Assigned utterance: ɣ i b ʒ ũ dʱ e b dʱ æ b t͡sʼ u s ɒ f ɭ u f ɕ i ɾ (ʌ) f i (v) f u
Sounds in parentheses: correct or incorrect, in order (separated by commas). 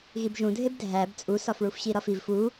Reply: incorrect, correct